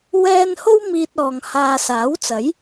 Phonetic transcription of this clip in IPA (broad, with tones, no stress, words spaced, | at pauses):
wɛː˥n ho˥wmiː˧t̚ɔː˨ŋ haː˧saː˨˥wt͡sɐ˨˥j